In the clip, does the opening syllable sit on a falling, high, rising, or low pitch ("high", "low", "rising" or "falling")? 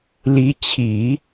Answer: rising